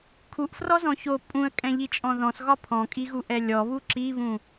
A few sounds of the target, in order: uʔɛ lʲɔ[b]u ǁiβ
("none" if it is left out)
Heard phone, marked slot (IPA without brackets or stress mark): β